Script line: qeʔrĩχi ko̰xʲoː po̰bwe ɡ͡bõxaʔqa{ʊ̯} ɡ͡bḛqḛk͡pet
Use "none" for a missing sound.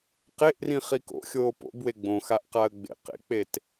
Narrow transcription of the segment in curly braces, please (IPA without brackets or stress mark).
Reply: ə̯